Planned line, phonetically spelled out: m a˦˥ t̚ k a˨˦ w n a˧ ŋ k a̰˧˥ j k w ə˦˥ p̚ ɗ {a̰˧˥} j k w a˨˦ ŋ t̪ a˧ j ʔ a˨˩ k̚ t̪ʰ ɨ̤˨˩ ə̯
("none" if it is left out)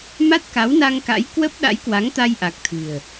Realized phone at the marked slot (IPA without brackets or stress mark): a̰˧˥